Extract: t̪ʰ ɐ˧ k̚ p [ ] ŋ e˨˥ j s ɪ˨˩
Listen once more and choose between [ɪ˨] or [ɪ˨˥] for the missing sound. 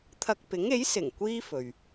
ɪ˨˥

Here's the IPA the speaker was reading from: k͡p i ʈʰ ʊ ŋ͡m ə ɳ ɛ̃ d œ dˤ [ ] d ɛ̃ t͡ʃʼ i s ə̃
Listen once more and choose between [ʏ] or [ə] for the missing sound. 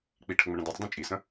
ʏ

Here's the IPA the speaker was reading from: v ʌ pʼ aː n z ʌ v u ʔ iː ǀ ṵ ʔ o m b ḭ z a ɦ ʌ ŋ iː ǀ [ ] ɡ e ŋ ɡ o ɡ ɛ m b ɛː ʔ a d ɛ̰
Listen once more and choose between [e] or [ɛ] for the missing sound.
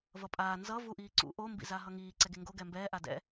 ɛ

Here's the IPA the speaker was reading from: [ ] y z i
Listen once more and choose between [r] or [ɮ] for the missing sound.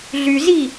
ɮ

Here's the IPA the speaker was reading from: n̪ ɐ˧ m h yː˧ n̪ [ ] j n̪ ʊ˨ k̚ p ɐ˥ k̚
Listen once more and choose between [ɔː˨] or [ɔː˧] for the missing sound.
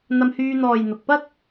ɔː˨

